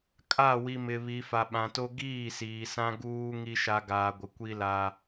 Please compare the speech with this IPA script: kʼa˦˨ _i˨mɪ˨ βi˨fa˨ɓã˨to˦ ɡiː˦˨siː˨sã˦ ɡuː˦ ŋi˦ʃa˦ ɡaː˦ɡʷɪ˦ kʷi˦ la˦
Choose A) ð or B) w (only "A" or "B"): B